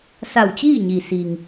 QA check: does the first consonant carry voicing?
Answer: no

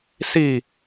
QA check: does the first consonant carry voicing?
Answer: no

